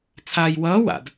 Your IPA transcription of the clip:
t͡sʰ aː j w ʌː w a̰ d

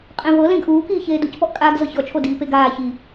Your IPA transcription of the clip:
qʼ ẽ v ɤ l ẽ ɡ ʔ uː k iː ç eː d u c p ɔ ʔ kʼ aː ɡ z ɤ ç ɔ t͡ʃʰ o d iː p e ɡ aː ç i

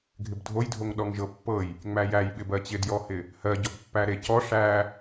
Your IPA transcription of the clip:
ɡʱ ɪ b dʱ o j dʱ o ŋ ɗ ɔ ŋ ʒ ɤ pː ɤ j | ŋ͡m æ j æ j ɓ ɪ b ɜ t͡ɕ ɪ d j ɔ h ɪ | h ɜ ɟ ɔ b pː æ ɾ e c ɔ ʂ æ

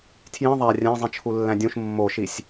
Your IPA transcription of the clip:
tʰ j ĩ ðˤ æ rʲ æ̃ zˤ ĩ t͡ʃʰ u lː æ̃ dʲ ũ ʃ mː o ʃ i sʲ

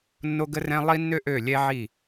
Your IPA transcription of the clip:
nː o˦ ɡ ə˦ r ɛ̃˦ lˠ i˦ nː ø˦ ʔ ø˦˨ lʲ ɛ˦ ʕ i˦˨

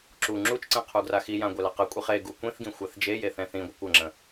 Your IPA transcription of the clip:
ǁ u ŋ͡ǁ u t͡ʃ ǀ ɛ̃ qʰ u ɡ r a x i j ã ɡʷ ɛ l a q ə kʷʼ i χ e ɡ u kʷ ĩ θ ɡ ĩ xʷ a θ d͡ʒ e j e θ ɛ̃ θ ĩ ɡʷ ə kʷ ə ŋ͡ǁ ə̃

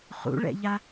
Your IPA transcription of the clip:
χ ṵ ɭ ɛ̰ ʎ a

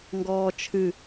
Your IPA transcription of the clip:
ŋ ɡ ɔː t͡ʃʰ ɨ

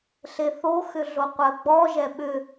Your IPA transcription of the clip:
ɬ e θ o x ʏ ɮ o qʷ ɜ ɡ͡b ɔ ʒ ɛ ɓ ʏ

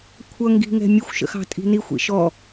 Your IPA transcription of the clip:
kʷʰ ʌ ŋ ɡ i̤ ŋ ɛ̤ mʲ ə xʷ ʃ ə̰ x ɑ̤ tʼ i̤ n i xʷ ḭ ʃ ɔ

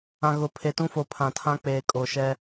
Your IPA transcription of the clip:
ã˨ ɣ ʊ˨ pʰ e˨ t ũ˦ f o˨ pʰ ã˨ tʰ ã˦ k͡p eː˨ kʼ o˨ ʃ ɛ˦

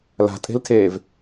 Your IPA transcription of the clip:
l a̤ tʼ e̤ l tʰ eː v

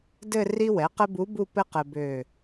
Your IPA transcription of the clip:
d ɘ˥˧ r i˥ w ɛ˩˥ q ɘ˥ b u˧˥ b u˥˧ p ɘ˥ q ɘ˧ b ø˧˩

